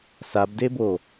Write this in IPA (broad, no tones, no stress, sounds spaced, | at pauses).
s a b d e b o